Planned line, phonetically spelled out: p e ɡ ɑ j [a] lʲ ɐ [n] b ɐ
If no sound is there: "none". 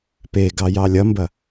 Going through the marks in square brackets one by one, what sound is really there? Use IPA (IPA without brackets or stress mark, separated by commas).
ɑ, m